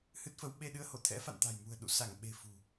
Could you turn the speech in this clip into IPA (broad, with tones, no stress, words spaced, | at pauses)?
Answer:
hɨ˦˥t̚fə˨˦w ɓe˧ɗɨ˧ə̯ ho˧˩t̪ʰɛ̰˧˥ fa̰˧˨nt̪a̤˨˩jmṳ˨˩ə̯ ɗṵ˧˨ sa˧˩ŋɓe̤˨˩ fṳ˨˩